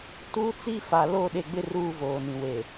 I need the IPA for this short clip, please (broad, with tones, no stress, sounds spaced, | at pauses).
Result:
t u˦ t͡s i˦ f a˨ l o˦˨ ɗ e˨ ɡ͡b ɪ˦ r uː˦ v oː˨ n ĩ˨ w e˨